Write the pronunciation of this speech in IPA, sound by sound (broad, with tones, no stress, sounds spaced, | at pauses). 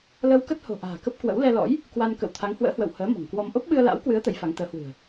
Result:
l ə˧ w k ə˦˥ t̚ h o̤˨˩ ʔ a̤ː˨˩ k ə˦˥ p̚ k w ə̰˧˥ w l ɛ˧ l ɔ̰˧˥ j | k w a˧ n k ə̰˧˨ w t̪ʰ a˨˦ ŋ h w ə̰ː˧˥ h w ə̰˧˨ w h əː˨˦ m ɔ̤˨˩ ŋ k w ɔ˧ m ʔ o˦˥ p̚ ɓ ɨ˧ ə̯ l a̰˧˥ w k w ɨ˨˦ ə̯ t̪ ə˨˦ j f a˨˦ ŋ t̪ əː˨˦ h w ɨ̤˨˩ ə̯